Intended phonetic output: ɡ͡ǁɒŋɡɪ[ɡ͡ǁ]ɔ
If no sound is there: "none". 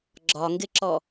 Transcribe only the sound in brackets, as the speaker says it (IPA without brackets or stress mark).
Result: ǁ